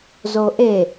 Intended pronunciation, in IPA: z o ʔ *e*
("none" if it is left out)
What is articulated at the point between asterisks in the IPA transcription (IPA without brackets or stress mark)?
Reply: e